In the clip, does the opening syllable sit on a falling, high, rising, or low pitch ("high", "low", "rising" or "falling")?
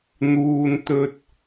high